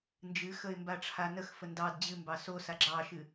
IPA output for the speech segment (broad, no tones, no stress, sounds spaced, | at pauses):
n d͡ʒ ɨ x ə ɪ̯ m b a ʈ͡ʂʰ a n ə x f ə n d ɑ d d͡ʑ ɨ m b ɑ s o s a ɡ͡ǁ ɑ ʃ ɨ